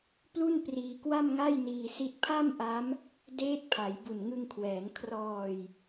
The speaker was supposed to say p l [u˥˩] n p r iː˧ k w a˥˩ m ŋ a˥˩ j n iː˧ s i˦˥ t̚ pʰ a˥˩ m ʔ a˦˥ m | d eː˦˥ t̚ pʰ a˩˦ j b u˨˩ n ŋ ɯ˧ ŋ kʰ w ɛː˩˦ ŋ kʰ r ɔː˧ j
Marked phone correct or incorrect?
correct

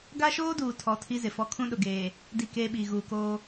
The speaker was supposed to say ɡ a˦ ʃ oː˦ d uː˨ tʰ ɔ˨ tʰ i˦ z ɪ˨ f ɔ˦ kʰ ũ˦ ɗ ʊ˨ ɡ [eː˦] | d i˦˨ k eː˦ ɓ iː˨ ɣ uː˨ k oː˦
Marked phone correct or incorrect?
incorrect: eː˨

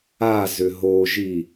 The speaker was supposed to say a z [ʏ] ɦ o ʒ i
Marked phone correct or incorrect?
correct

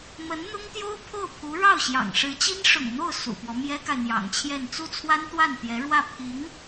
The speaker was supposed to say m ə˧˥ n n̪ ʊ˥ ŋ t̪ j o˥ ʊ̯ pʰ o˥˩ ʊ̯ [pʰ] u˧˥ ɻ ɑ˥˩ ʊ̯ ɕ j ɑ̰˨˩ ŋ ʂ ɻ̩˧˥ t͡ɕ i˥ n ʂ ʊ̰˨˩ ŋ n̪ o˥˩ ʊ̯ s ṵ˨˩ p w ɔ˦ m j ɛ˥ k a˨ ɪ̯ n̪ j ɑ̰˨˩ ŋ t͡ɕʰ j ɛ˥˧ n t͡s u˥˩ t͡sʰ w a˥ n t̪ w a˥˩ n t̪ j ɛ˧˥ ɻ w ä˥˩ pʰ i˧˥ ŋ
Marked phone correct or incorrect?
correct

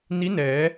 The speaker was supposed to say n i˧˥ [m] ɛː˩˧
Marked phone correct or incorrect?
incorrect: n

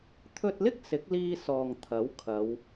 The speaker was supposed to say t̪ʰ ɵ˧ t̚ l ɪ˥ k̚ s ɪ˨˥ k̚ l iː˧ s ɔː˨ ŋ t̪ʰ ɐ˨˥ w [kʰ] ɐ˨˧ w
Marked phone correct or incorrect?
correct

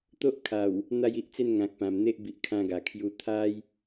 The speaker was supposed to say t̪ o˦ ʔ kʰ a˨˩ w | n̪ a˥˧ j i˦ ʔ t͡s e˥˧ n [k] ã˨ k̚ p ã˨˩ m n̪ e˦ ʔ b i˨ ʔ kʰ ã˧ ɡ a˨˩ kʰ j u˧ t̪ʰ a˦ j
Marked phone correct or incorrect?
incorrect: ŋ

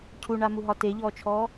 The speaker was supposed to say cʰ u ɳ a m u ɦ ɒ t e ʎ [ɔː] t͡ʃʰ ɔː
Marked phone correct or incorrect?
correct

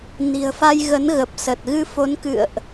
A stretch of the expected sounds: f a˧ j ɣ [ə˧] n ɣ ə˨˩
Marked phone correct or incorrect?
incorrect: ə˨˦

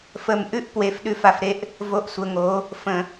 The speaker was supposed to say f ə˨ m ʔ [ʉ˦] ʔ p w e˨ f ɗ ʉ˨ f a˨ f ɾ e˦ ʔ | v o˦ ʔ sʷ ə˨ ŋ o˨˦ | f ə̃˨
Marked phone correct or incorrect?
correct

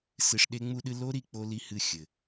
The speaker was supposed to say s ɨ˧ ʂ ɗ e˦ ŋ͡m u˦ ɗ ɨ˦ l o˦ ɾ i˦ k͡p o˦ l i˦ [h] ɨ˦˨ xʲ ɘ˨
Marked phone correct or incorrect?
correct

